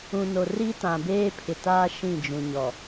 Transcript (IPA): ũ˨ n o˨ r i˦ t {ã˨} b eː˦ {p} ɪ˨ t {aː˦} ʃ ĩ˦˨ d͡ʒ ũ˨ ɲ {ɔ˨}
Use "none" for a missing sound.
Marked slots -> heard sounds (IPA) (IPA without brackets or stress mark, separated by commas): ã˨, pʰ, aː˦, ɔ˨